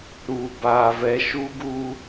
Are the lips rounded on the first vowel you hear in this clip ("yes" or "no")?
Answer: yes